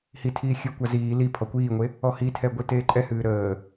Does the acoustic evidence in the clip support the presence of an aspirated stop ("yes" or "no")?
yes